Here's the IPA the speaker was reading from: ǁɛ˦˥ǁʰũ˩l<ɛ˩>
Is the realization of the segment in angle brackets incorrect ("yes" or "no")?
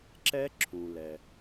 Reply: no